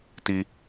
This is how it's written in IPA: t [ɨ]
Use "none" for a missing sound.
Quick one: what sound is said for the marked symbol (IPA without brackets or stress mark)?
i